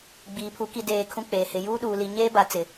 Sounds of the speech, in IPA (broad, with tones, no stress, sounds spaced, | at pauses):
ɡ͡b iː˨ pʰ u˨˦ k i˨ d eː˨ kʰ ũ˦ k͡p eː˨ h ɪ˨ j uː˦ ɗ uː˨ l i˨ ɲ eː˦ b a˨ t͡s ɪ˨